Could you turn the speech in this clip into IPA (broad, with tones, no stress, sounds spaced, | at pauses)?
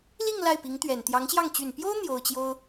l i˥˧ ŋ l a˥˩ ɪ̯ p i˧˥ ŋ t̪ ɥ ɛ˨˩ n t̪ j ɑ˧˥ ŋ ɕ j ɑ˥˩ ŋ t͡ɕ y˨˩ n p j o˥ ʊ̯ n̪ j o˥ ʊ̯ t͡ɕ j o˥ ʊ̯